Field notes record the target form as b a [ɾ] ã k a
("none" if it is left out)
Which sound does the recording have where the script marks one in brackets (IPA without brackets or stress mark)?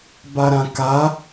ɾ